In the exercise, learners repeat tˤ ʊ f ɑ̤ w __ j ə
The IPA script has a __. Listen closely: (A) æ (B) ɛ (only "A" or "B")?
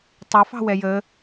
B